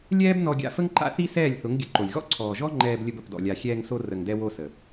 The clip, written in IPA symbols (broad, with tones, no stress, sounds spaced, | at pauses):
lʲ ɛː˦ b n ɔ˧ ɡʲ a̰˧ f ə˦ ŋ ǃ a̰˦ θ i˦ s ɛː˦˨ lʲ θ ʊ˨˦ ŋ ɡʲ ə˨˦ ǃ o˨ lʲ ɣ ɔ̰˦ ǀʰ ɔː˨ ʒ ɔ˦ ŋ͡ǃ ɛː˧ b lʲ ə˧ b ə˨ p d ɔ̰˨ lʲ a˨ xʲ ɛː˧ ŋ s o˧ r ə˨ ŋ d ɛ˧ w o˧ s ə˨